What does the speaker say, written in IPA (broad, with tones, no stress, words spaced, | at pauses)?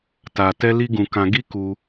ta˧ tɛ˦li˦ɡũ˧ kã˧ɡi˦ ku˦